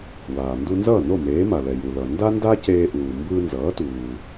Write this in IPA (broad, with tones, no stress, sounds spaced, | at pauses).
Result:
w aː˩ n d u˧ n z ʌː˥˩ n o˥˩ m eː˩˥ m a˩ l ɛ˩ j u˩ l ʌ˩ n d a˥ n d a˥ c eː˧ ʔ uː˩ m b ɯː˧ n z ʌː˩˥ t uː˩